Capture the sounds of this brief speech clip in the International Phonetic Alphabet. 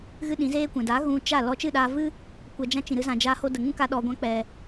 ɣɨ˦ɗĩ˨˦zeː˦kʷɛ̃˨ da˨˦ ɣũ˧t͡ʃa˦˨ lɔ˧t͡ʃɨ˦˨ɗaː˧vɨ˦ | kʷɛ˧d͡ʒã˦ t͡ʃĩ˨ɾɨ˧zã˨d͡ʒaː˧ ho˧də˨ŋũ˦ka˧ ɗɔ˧ɡʷã˦ k͡pɛ˨

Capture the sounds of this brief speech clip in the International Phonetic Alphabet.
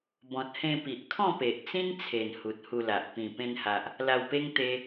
bɔ̃˨t̚hẽ˧ pi˨ʔkʰɔ̃˥˧pe˨ʔ t͡sĩ˦nt͡sʰe˨˩n hu˨t̚ hu˧la˨ʔ pĩ˨˩ pẽ˧nha˨ʔ | la˧wpe˦ŋt̪e˧

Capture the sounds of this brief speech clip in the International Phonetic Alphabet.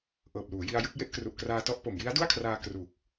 ʔɤː˨˩p̚luː˩˦ji˧a̯jɯ˥˩k̚ je˥˩ʔkru˨˩ʔkraː˧tɔ˦˥ʔ po˨˩mji˦˥a̯du˥˩a̯kʰraː˧ kruː˨˩k̚

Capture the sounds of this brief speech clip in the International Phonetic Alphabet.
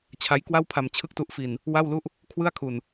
t͡ɕʰa˦˥jkwa˥˩wpʰa˧m t͡ɕʰɯ˥˩k̚tu˦˥ʔfi˧n | wa˥˩wlu˥˩ʔ | kʰwɯ˥˩a̯kʰu˧n

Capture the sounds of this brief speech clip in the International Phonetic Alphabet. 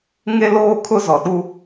ŋe˦loː˦kʰʊ˦ zɔ˨ɗu˦

